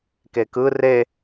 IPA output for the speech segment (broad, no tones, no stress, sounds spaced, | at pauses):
k e k ɯ r e